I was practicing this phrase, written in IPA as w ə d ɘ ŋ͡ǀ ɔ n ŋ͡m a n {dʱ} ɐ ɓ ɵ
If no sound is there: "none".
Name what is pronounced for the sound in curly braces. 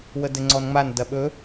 d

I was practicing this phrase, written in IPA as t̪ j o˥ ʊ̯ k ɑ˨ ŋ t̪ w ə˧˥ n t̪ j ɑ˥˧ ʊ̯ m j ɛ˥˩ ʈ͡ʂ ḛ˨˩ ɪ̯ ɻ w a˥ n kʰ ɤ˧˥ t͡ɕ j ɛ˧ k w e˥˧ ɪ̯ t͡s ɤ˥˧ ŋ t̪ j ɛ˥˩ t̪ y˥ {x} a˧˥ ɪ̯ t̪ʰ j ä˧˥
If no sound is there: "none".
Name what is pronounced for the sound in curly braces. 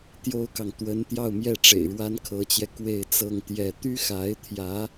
x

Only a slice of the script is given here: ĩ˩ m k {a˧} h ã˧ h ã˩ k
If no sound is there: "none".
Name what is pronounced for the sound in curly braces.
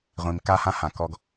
a˧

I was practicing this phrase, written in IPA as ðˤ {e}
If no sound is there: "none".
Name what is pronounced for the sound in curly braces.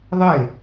e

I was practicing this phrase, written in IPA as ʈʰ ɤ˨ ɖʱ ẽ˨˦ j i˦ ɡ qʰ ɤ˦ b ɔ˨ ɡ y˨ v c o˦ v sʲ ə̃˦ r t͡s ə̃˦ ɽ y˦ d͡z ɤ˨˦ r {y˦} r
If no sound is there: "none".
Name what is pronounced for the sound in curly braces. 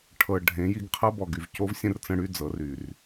y˨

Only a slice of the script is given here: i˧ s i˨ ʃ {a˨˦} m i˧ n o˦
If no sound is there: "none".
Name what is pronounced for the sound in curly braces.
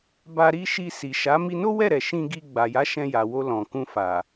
a˨˦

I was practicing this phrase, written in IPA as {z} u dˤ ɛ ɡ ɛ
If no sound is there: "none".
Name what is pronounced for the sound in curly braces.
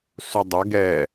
s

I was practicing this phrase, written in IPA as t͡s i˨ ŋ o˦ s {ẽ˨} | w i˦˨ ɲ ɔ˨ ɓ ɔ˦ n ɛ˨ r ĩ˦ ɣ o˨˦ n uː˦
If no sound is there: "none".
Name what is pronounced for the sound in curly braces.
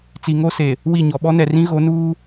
e˨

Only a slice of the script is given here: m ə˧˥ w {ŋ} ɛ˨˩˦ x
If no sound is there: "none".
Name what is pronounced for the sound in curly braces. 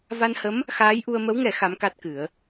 ŋ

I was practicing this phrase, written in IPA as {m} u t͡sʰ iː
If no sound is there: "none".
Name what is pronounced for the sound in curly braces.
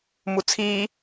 m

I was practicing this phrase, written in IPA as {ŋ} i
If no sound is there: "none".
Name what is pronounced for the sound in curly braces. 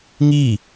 ŋ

